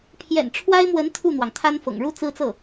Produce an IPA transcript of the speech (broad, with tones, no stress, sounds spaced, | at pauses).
pʰ j ɛ̰˨˩ n ʈ͡ʂʰ w a˥ ɪ̯ m w ə˧˥ n t̪ʰ u˥˩ n̪ w ɑ˩ ŋ t̪ʰ a˥ n f ɤ̰˨˩ ŋ ɻ u˥˩ t͡s ɹ̩˥ t͡s ɤ˥˩